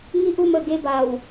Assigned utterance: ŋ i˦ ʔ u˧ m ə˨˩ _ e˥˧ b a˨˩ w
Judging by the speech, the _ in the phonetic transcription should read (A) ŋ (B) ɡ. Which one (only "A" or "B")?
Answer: B